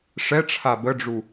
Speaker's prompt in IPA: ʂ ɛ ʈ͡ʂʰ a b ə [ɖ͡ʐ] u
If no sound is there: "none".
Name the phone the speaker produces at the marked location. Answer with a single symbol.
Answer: ɖ͡ʐ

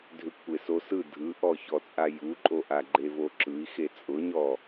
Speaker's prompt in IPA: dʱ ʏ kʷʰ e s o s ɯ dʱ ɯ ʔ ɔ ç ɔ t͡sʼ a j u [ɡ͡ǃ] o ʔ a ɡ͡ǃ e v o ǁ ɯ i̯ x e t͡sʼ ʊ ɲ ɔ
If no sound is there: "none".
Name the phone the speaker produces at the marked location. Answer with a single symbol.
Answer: ǃʼ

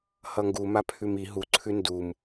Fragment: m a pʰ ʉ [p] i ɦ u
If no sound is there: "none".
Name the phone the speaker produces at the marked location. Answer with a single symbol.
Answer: m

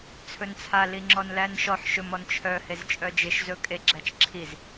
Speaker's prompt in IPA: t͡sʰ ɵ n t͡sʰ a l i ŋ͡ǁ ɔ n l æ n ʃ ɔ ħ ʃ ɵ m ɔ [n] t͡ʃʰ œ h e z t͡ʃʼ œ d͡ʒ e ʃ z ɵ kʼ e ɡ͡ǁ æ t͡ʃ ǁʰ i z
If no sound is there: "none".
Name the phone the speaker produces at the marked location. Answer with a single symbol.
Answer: n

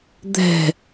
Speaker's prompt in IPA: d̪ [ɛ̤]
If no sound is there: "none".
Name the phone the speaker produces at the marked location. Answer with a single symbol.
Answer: ɛ̤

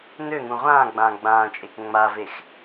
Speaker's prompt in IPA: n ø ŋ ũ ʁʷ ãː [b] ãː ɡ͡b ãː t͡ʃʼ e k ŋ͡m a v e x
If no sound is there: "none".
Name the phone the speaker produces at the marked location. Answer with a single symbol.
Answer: ɡ͡b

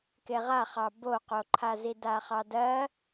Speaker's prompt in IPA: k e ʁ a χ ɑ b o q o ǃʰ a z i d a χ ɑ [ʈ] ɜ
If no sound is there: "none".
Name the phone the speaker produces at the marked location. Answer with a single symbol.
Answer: d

